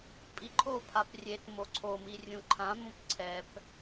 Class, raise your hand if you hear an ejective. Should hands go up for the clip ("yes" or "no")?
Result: yes